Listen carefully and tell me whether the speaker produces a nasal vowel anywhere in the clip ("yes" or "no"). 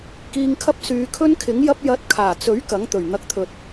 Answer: no